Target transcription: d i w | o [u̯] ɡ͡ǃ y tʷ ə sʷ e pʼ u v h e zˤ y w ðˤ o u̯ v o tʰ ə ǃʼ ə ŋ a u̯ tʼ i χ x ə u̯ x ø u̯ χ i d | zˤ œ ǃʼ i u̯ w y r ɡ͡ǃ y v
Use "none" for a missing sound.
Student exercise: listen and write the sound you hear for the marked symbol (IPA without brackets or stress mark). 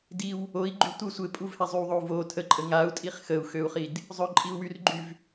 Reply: i̯